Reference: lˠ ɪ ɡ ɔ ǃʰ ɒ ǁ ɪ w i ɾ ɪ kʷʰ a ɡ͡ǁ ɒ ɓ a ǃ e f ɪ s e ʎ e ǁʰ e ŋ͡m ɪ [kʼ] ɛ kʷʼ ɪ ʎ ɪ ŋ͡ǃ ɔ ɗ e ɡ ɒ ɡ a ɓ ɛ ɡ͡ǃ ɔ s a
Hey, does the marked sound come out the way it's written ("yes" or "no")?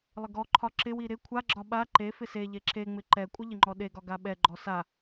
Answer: no